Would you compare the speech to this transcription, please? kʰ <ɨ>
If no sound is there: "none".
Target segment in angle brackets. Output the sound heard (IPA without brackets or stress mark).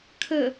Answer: ə